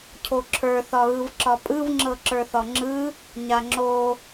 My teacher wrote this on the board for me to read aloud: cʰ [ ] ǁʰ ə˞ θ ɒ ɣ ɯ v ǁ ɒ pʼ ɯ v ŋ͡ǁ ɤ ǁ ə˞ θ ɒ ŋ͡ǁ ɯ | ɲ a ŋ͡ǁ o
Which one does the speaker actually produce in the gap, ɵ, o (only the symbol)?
o